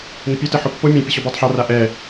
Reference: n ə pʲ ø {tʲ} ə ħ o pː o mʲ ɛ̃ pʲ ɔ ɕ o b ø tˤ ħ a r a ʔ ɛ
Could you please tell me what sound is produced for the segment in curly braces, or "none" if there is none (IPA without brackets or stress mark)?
t